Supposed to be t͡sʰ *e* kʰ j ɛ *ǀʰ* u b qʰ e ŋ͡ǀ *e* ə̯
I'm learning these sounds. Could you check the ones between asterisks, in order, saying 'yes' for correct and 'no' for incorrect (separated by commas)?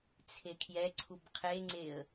yes, yes, yes